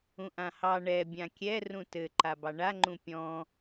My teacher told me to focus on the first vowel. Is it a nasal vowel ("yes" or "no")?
yes